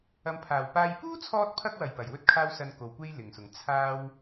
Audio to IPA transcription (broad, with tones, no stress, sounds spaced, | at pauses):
ɐ˨ m pʰ aː˨˩ w p aː˧ j p uː˥ t͡sʰ ɔː˧ t̚ pʰ ɐ˧ k̚ w ɐ˨˩ j p ɐ˨˩ j w ɵ˥ t̚ kʰ aː˥ w s ɐ˧ n k o˨ w kʷ e˥ j l ɪ˨˩ ŋ s ʊ˨˩ ŋ t͡sʰ aː˥ w